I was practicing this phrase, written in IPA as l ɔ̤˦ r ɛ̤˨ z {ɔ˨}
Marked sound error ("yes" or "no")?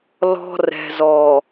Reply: no